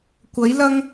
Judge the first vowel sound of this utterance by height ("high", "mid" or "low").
low